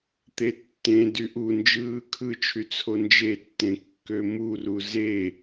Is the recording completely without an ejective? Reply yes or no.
yes